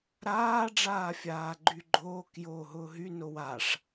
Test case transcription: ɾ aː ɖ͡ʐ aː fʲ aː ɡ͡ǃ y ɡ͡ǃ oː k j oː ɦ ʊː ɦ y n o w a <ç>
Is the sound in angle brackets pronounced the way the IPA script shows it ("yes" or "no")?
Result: no